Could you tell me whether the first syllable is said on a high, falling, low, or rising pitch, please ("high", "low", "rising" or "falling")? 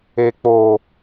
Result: low